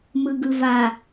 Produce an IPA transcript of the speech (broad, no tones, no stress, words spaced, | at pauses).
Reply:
mɯɡɯva